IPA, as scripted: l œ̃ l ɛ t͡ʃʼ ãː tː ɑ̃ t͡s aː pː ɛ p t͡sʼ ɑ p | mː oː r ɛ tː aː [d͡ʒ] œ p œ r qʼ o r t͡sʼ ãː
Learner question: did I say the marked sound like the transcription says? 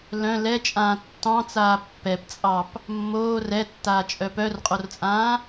no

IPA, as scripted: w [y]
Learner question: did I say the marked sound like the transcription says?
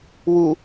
no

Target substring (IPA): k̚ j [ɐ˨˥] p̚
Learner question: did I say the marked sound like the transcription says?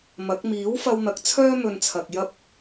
no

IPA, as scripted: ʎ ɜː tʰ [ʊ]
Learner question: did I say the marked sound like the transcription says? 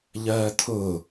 yes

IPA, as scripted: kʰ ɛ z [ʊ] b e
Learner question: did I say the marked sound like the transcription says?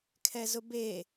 yes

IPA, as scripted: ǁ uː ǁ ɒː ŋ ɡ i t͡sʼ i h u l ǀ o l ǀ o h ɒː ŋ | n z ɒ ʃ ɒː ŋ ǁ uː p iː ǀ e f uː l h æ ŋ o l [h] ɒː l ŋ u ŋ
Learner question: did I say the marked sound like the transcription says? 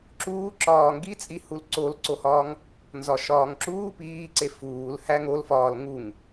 no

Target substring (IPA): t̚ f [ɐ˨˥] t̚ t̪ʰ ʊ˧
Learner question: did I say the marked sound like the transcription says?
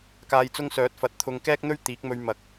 yes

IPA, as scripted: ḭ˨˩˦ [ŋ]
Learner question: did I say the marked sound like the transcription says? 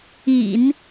no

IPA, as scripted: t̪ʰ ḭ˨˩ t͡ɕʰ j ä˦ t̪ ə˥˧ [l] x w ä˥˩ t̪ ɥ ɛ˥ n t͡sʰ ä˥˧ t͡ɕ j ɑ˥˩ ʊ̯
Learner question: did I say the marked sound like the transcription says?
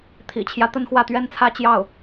no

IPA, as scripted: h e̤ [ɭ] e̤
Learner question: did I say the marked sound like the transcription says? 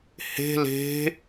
no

